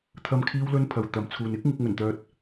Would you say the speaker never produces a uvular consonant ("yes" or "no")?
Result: yes